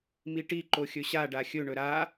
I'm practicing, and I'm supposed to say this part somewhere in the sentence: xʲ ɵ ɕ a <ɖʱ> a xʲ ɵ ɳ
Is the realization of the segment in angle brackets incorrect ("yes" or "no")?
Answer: yes